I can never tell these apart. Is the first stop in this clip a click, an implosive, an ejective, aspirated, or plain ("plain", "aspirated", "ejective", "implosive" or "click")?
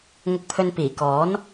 plain